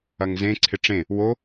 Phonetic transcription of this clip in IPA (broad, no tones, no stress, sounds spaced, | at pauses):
ɐ ŋ z ẽ ǀʰ ɪ ʈ͡ʂ ẽ | w o